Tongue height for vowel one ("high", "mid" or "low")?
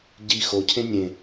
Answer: high